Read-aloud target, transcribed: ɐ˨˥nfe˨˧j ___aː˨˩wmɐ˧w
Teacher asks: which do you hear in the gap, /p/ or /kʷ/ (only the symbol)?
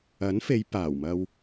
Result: p